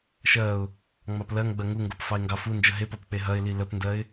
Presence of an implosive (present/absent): absent